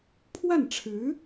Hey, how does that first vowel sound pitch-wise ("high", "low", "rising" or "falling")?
falling